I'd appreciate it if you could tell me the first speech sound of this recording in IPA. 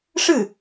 ʂ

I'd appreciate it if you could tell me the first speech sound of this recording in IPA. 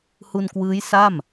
h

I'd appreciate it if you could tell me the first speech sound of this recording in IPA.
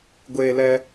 ɡʷ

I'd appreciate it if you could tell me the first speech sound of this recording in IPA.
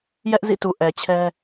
j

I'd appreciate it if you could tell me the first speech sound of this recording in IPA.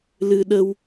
l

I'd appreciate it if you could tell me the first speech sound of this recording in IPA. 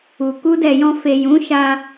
u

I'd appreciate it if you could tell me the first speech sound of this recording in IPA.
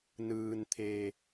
n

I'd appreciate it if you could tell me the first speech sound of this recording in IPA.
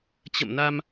t͡ɕ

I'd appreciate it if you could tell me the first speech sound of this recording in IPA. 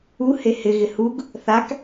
u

